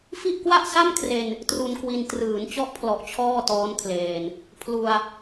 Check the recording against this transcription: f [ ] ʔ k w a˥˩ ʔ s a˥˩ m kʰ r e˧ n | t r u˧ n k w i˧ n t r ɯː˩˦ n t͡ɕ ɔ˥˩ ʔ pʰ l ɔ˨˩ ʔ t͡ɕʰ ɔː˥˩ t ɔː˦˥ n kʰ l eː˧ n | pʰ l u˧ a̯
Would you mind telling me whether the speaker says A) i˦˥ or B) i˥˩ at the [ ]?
B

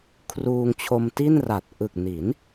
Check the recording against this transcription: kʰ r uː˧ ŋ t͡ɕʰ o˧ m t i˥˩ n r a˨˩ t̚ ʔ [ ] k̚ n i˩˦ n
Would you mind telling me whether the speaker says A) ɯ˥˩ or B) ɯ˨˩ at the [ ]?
B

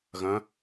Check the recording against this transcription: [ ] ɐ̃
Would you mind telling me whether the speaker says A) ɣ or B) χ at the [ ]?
A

